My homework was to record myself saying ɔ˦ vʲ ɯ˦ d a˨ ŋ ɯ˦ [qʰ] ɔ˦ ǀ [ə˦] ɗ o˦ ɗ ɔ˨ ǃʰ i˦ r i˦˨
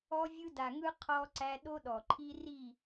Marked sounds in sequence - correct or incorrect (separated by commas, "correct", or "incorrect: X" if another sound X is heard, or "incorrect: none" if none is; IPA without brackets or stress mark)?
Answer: correct, incorrect: æ˦